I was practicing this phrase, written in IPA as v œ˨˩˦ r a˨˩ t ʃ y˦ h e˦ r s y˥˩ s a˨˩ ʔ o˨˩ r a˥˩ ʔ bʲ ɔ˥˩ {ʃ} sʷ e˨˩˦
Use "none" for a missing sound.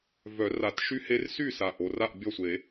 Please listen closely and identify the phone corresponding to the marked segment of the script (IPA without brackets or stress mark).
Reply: none